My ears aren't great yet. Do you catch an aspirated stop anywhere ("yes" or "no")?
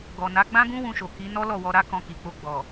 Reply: no